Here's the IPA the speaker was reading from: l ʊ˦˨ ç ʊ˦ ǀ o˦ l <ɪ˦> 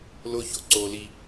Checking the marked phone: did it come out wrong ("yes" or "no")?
yes